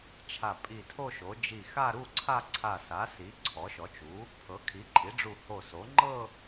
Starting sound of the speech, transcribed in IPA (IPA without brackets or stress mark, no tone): t͡ʃʰ